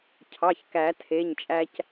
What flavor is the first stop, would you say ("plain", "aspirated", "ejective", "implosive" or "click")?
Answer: aspirated